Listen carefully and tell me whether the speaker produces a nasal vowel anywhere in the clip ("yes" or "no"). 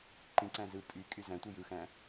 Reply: yes